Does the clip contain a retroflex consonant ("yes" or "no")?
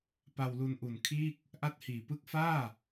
no